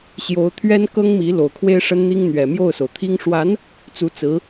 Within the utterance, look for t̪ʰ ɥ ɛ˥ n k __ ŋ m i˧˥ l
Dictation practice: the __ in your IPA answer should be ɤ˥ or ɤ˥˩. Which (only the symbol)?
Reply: ɤ˥